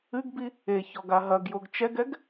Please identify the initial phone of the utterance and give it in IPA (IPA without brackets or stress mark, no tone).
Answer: ɨ